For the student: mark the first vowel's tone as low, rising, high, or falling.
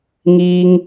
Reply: high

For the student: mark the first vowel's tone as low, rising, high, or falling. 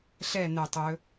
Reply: falling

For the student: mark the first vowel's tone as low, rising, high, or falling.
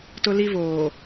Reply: high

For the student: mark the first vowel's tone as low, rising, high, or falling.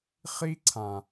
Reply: high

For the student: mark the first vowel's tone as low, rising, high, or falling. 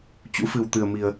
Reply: rising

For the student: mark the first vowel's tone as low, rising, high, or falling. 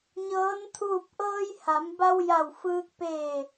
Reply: rising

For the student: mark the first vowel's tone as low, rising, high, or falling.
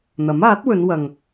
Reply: rising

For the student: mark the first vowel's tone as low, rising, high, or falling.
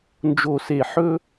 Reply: falling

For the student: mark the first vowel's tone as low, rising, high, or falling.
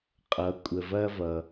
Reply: low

